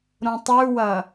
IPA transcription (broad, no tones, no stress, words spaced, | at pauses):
ɾõtˤʉwɐ